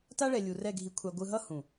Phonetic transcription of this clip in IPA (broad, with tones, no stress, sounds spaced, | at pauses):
t a˦ ɭ ɛ˨ lʲ u˨ r ɛ˦˨ ɡʱ i˨ kʷʰ a˨ ɡʷ ɯ˨ ɦ ʌ˦ h ũ˨